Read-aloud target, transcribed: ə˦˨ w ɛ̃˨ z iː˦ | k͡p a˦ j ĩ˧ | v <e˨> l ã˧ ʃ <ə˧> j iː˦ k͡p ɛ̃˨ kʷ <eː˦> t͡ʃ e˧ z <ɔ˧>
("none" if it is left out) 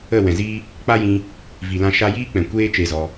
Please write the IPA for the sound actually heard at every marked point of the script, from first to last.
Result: i˨, a˧, eː˦, ɔ˧

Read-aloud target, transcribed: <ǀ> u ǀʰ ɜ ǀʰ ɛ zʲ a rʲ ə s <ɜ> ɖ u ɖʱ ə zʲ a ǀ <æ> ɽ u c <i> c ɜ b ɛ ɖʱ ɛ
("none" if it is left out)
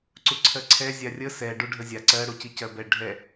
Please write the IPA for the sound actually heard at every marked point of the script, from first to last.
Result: ǀ, ɛ, ɜ, i

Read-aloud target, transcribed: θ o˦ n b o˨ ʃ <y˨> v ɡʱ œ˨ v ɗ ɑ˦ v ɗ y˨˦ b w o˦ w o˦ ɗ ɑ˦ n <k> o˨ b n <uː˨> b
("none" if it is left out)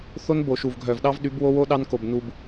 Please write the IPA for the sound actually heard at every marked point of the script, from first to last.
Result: u˨, k, u˨

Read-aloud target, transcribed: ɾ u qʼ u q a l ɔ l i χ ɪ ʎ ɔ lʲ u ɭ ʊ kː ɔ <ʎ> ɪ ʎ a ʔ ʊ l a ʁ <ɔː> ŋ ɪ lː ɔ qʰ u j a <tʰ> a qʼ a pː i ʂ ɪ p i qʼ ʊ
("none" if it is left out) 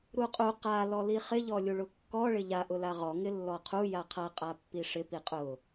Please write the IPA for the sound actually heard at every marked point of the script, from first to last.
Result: ɭ, ɔ, qʰ

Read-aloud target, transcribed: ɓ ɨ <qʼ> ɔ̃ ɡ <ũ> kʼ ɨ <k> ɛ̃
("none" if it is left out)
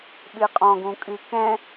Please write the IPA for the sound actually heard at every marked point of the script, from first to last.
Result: qʼ, ũ, k

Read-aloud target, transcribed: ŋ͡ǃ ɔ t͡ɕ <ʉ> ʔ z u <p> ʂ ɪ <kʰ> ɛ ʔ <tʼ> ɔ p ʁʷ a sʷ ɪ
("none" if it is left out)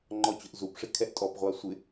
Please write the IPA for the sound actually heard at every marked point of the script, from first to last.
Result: ʊ, p, kʰ, tʼ

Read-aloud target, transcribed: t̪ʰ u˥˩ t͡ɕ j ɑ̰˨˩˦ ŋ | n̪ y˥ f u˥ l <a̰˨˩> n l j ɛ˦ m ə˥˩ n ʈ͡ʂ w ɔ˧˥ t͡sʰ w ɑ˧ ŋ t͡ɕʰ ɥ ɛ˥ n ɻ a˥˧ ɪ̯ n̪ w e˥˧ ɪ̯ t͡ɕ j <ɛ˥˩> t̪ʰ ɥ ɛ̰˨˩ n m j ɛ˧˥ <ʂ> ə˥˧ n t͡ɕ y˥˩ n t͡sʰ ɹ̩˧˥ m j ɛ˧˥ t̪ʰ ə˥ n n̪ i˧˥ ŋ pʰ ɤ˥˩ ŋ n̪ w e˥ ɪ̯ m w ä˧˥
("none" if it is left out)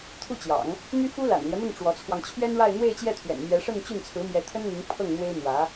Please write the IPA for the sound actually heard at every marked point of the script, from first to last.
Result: a̰˨˩, ɛ˥˩, ʂ

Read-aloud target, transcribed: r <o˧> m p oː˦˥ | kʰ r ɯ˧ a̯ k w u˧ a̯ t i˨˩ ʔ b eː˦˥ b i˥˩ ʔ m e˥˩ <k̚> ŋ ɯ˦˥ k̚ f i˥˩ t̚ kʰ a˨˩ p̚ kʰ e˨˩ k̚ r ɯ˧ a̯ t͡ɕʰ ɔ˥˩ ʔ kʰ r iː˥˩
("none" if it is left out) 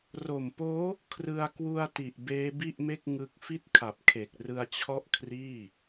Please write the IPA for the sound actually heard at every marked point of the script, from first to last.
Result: o˨˩, k̚

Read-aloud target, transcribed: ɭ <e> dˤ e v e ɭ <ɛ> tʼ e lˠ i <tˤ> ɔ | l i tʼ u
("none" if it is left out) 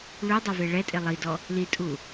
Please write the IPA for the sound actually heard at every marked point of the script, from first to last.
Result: y, ɛ, d

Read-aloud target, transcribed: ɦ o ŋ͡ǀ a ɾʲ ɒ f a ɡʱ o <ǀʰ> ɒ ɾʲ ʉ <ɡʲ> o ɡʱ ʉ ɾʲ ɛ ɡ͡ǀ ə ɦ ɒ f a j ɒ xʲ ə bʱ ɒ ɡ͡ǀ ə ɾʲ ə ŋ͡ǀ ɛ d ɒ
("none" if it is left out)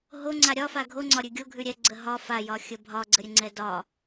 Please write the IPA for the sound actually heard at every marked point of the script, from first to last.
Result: ŋ͡ǀ, ɡʲ

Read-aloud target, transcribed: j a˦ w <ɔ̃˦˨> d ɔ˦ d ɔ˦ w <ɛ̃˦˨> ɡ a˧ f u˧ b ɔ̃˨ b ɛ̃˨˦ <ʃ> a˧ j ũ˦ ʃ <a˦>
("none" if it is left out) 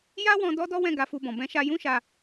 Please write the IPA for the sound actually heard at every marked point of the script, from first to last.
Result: ɔ̃˧, ɛ̃˦˨, ʃ, a˧

